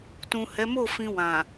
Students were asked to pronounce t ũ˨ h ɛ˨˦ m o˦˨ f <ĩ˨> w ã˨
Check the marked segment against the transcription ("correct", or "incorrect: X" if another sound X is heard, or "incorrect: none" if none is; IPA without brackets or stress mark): incorrect: ĩ˧